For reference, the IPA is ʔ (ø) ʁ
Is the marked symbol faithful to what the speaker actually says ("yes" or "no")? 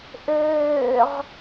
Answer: no